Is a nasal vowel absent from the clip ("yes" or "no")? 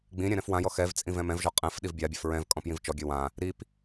no